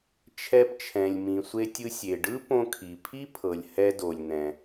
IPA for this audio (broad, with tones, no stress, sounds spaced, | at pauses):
t͡ʃʰ ɛ˧ p t͡ʃʰ ɛ̃˩ lʲ m ĩ˩ sʷ e˧ tʲ ɯ˧ sʲ e˩ ɖ ɯ˥ p õ˧ kʰ i˩ pʰ i˥ pʰ ɤ˩ lʲ h ɛ˧ d o˩ lʲ n̪ ɛ̃˩